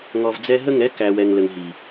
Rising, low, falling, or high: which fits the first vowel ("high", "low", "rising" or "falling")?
low